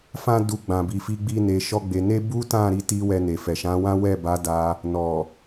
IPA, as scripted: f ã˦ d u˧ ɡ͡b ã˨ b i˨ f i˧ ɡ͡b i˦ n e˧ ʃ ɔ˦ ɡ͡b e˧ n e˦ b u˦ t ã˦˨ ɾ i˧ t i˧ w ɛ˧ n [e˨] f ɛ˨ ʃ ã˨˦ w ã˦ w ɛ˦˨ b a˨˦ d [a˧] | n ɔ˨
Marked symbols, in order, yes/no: yes, yes

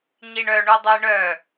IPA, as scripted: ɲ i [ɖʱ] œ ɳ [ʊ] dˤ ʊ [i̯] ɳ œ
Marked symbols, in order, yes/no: no, no, yes

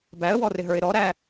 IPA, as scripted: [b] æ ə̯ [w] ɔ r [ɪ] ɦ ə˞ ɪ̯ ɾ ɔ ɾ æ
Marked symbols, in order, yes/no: yes, yes, yes

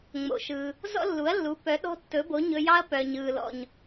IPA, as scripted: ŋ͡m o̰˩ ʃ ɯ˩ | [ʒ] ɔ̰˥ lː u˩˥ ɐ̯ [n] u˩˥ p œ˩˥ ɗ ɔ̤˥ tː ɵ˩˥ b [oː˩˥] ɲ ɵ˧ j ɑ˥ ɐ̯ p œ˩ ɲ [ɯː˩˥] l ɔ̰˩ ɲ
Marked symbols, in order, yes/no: no, no, no, no

